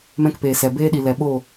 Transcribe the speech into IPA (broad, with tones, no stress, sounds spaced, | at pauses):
m ɛ̃˦ k p eː˨ s ɛ˨ b eː˦ ɗ i˨ l ɛ˨ ɓ o˦˨